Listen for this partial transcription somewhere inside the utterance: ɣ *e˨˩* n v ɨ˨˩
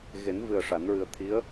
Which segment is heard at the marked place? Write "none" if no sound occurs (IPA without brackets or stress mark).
e˨˩˦